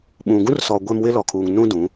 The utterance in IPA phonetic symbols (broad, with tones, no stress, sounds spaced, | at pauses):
ɓ ũ˨ ɡ ũ˦ r s ɔ˨ ɡʷ ɛ˦ m w ɪ˦ l ɔ˨ kʰ uː˨ ŋ n ũ˦ d ũ˨˦